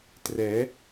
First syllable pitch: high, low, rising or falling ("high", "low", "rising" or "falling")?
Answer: rising